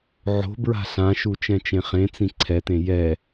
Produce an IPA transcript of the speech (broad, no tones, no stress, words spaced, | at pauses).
ʕo̤ bɹa̤ɬãʃu t͡ʃɛ̃t͡ʃẽχẽt͡sĩ ǀʰɛtẽ jɛ